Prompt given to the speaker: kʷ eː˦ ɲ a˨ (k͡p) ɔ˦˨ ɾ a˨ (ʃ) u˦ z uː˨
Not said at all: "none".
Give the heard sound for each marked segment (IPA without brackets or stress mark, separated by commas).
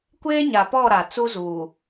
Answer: p, t͡s